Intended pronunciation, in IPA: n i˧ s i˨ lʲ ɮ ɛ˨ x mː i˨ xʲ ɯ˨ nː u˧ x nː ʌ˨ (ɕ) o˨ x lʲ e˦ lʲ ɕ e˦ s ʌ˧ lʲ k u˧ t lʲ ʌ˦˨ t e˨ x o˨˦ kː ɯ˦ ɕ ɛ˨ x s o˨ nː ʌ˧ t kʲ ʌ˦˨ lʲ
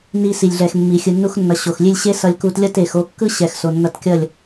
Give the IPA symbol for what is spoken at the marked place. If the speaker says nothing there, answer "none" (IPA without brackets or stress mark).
ɕ